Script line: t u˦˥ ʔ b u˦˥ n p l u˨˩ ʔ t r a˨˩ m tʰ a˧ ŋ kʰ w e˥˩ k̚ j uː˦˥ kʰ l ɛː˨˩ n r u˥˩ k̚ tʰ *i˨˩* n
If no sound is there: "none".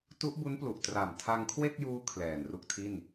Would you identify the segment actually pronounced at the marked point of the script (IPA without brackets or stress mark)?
i˥˩